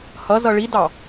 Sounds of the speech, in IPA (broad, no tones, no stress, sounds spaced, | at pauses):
h ʌ z ʌ ɭ i d ɑ